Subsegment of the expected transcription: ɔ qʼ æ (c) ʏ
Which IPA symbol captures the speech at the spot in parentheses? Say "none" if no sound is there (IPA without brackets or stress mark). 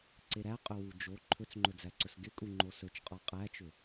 t͡ʃ